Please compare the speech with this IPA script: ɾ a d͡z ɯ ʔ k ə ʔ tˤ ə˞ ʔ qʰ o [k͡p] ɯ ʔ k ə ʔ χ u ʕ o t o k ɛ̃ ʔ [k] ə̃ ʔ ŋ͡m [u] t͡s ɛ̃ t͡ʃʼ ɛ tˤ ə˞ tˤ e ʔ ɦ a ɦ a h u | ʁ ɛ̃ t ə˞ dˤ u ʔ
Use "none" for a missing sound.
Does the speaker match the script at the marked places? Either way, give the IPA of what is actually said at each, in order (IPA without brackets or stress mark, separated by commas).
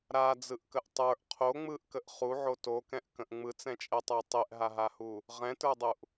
ŋ͡m, k, ɯ